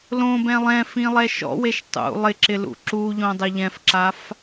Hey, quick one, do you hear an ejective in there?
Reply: no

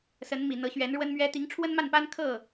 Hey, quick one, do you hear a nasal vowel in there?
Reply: no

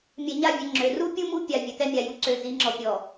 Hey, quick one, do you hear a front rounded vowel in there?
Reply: yes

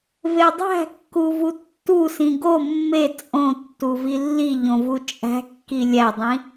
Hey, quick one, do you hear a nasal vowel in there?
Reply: yes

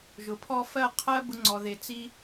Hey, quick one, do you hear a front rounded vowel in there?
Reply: no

